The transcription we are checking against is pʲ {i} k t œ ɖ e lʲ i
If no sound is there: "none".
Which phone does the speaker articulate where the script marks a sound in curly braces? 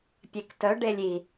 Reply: e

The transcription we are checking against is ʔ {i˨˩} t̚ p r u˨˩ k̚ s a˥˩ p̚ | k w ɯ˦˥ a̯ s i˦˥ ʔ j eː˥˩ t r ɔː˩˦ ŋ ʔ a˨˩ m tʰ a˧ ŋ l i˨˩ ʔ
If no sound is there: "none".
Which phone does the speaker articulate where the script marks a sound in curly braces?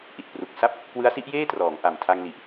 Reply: i˨˩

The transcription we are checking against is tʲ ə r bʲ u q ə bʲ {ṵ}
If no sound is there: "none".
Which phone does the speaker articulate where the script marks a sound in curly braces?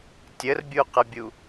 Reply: u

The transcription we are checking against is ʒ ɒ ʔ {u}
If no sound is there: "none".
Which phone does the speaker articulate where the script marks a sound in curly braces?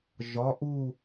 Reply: u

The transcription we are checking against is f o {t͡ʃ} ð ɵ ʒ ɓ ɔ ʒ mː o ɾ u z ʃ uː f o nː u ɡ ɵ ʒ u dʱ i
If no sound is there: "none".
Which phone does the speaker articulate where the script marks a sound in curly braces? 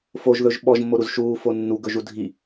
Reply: ʒ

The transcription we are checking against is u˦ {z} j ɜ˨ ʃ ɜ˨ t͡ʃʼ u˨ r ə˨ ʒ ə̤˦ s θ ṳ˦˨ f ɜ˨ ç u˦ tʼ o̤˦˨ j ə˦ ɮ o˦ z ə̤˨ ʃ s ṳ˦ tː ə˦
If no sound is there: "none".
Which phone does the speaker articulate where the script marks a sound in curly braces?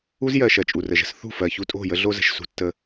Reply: z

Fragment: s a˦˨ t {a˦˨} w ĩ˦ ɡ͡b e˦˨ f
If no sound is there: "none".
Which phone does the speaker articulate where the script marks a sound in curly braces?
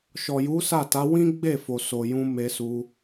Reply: a˨˦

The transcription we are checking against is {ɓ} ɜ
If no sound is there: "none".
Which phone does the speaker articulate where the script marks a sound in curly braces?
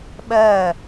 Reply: ɓ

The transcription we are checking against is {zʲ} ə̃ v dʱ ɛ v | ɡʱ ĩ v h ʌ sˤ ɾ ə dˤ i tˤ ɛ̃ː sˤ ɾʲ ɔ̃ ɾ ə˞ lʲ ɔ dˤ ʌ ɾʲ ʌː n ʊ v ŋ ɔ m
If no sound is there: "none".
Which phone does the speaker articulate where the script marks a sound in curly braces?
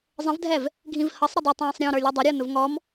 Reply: zˤ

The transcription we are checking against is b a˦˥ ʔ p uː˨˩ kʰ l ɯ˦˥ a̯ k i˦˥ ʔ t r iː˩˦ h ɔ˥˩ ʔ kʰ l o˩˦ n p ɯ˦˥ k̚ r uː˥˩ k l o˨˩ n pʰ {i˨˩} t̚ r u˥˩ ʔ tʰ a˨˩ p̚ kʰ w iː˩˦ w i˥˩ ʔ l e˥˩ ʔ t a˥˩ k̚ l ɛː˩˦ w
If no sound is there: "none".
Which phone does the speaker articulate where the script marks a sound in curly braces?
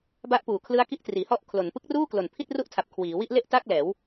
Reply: i˥˩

